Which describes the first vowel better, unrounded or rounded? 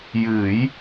unrounded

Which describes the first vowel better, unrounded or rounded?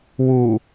rounded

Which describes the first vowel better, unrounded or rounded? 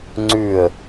rounded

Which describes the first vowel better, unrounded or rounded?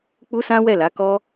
rounded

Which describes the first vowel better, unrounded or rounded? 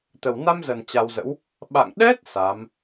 unrounded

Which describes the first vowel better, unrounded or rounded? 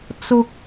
rounded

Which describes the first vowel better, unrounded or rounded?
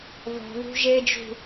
rounded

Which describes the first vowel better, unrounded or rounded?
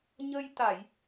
unrounded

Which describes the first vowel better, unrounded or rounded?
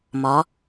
rounded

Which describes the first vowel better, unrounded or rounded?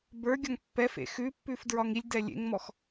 unrounded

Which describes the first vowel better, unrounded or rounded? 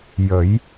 unrounded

